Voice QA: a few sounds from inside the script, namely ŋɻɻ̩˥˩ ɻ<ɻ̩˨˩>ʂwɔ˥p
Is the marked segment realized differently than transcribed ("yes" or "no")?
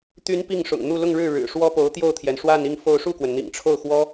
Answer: no